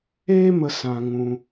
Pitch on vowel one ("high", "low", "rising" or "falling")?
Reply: high